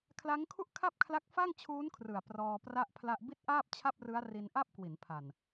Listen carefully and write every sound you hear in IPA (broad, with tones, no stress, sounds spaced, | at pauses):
kʰ l a˦˥ ŋ kʰ u˥˩ ʔ kʰ a˥˩ p̚ kʰ l a˦˥ k̚ f a˥˩ ŋ t͡ɕʰ uː˦˥ n kʰ r ɯ˨˩ a̯ p r ɔː˧ p r a˥˩ ʔ pʰ l a˥˩ ʔ b i˥˩ t̚ ʔ aː˥˩ p̚ t͡ɕʰ a˥˩ p̚ r ɯ˦˥ a̯ r i˧ n ʔ a˥˩ p̚ k w i˩˦ n pʰ a˨˩ n